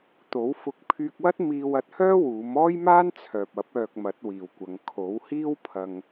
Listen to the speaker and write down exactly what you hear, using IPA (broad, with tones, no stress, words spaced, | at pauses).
t̪o˨˥wfʊ˧k̚ pʰyː˧k̚wɐ˥t̚ miː˧wɐ˧t̚hœː˥ wuː˨˥m ɔː˥jmaː˥nt͡sʰœː˨p̚ɐ˨˥p̚ œː˧k̚mɐ˨˥t̚wiː˨wkʷɐ˨˧ŋ kʰo˨˥whiː˥wpʰɐ˧ŋ